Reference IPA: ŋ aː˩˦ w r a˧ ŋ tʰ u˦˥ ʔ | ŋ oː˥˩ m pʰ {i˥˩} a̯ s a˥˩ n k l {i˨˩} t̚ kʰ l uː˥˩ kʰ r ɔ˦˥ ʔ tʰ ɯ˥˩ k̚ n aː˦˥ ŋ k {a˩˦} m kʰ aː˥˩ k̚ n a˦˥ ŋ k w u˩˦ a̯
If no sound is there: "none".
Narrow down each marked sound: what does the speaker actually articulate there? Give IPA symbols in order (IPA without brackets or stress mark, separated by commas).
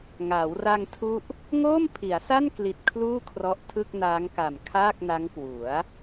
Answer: i˩˦, i˨˩, a˨˩